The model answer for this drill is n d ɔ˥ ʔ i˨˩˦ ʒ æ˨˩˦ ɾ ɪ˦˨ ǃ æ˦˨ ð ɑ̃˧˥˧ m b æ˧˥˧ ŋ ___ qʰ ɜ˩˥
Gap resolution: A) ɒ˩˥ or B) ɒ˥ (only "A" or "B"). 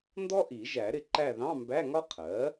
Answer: B